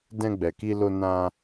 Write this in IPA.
d ɛ̃˧ ɡ͡b ɛ˨ k i˧ l o˧ n ã˧

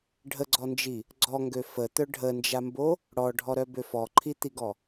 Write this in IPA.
ɖʱ ə ɡ͡ǀ ɔ n d͡ʒ i | ɡ͡ǀ ɔ ŋ ɡ ø f ə t̪ œ ɖʱ ə n d͡ʒ a m b o | ɽ ɔ ɖʱ ɔ ɾ œ b ø f ɔ ǃʰ i t̪ i ɡ ɔ

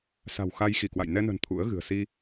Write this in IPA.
s a̤˨˩ w x a˧ j x i˧˩ k w a̰˧˨ j n ɛ˧ n ə̤˨˩ n t̪ʰ ṵ˧˥ ə̯ ɣ ɨ̤˨˩ ə̯ s i˧

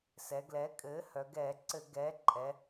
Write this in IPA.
s ɛ˩˧ ɡ l ɛ˩˥ kʼ ɘː˩˥ h œ˩˧ ɡ ɛː˧˩˧ ǀ ɘ˧˩˧ ɡ ɛː˩˥ ǃʼ ɛ˩˧

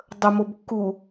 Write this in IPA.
dˤ ə m o b kː u

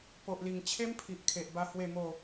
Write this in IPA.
p o˨ ʔ l i˨˩ ŋ t͡ɕʰ e˦ m pʰ i˨ ʔ kʰ e˨ ʔ b a˧ h w e˥˧ m o˥˧

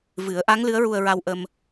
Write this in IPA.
v ɨ˨˩˦ ə̯ ʔ a˧˥ ŋ l ɨ˧˥ ə̯ ɹ u˧ ə̯ ɹ a˧ w ʔ ə˧ m

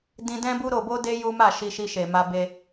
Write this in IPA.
d ĩ˧ d ɛ̃˦ b u˦ ɾ o˧ b o˦ d e˦ j u˦ m a˦˨ ʃ i˧ ʃ i˧ ʃ e˨ m a˧ b e˧

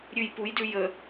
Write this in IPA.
ɾʲ ʉ j p u j d ʉ j ə

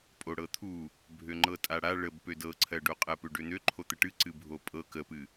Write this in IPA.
pʼ o ɽ ɤ t̪ʰ u | bʱ ø ŋ͡ǃ ɤ tʼ a ɽ a ɭ ə b p ø d ɤ ǀʰ ɜ ɖ o qʼ ɜ p ø ɖ ø n̪ ø ǃʰ o t̪ ə ʈ ɨ ǀ ɨ bʱ o pʼ ɤ k ə p ɨ

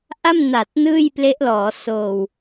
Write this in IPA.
ʔ a˥˩ m n a˨˩ t̚ n ɯː˥˩ j p l e˦˥ ʔ l ɔː˩˦ s oː˨˩ w

